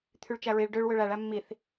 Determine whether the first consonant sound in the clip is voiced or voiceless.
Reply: voiceless